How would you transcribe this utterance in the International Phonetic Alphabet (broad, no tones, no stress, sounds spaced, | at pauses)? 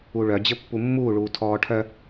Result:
u ɭ œ d͡ʑ ɘ pː u mː uː ɭ uː tʰ ɔː ʈʰ œ